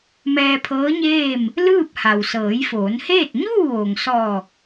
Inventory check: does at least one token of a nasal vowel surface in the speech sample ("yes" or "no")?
no